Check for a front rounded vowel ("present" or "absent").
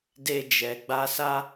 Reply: absent